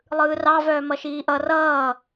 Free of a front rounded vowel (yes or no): no